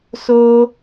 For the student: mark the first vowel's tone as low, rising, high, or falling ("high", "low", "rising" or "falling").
high